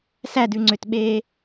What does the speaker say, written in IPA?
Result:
sædʉŋ͡ǀøtɓeː

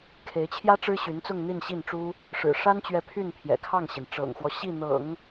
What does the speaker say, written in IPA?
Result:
kʰe˧˥ɪ̯t͡ɕʰjä˥ ʈ͡ʂɻ̩˥ɕy˧˥nt͡sʊ˥˧ŋ n̪i˥˧nɕi˥˩nʈ͡ʂu˥ | ʂɻ̩˨˩ʂa˥nt͡ɕɥɛ˧˥ pʰy˥˩npʰjɛ̰˨˩kʰɑ˥˩ŋɕi˩n ʈ͡ʂɤ̰˨˩ŋxwɔ˦ ɕi˥˩n̪ɤ̰˨˩˦ŋ

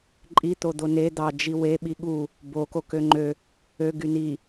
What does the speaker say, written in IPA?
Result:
ǃʼi t̪od̪one d̪ɑ d͡ʒiweɓi ɠu | boko køŋ͡ǃø | ø ɡyni

